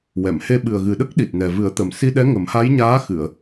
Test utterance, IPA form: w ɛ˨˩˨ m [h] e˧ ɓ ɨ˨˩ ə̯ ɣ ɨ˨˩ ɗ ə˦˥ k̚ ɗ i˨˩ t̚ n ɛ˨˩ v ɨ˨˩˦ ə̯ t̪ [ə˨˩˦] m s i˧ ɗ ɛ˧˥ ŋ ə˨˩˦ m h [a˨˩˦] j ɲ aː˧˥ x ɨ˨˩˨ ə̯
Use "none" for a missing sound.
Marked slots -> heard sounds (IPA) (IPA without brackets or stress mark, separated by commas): h, ə˨˩, a˧˥